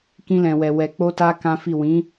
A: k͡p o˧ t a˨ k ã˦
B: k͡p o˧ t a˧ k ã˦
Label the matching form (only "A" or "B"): B